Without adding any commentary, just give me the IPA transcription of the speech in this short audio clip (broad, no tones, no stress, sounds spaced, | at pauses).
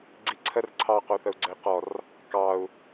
ɡ͡ǀ i ǀʰ ə r ǀʰ ɑ q o θ ə u̯ ɡ͡ǀ ə i̯ q ɔ r | k ɑ u̯